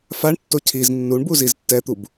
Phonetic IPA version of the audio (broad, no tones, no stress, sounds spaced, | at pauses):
f a ɳ tː o cʰ i z nː u ɳ b u z i z tː ɛ t̪ u b